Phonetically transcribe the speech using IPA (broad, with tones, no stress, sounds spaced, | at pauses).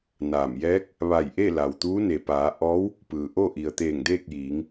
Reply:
n aː˧˩ m j ɛː˧˥ k̚ | ʋ a˧˩ j ʔ e˥˨ l a˩ w t̪ uː˧˥ n e˩ p aː˩˧ ʔ ɔː˧˥ w | p ɯː˩ ʔ o˥˨ ʔ i˩ ə̯ t̪ eː˧˩ ŋ d eː˥˨ k̚ j iː˩˧ ŋ